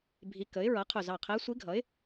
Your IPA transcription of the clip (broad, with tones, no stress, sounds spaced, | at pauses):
bʱ i˧˥ k ə˩˥ ɪ̯ ɹ ʌ˩˥ qʰ ʊ˧˩ z ɑ˧˩ qʰ ɛ˧˥ sʷ i˧˥ ɡʱ ʌ˩˥ ɪ̯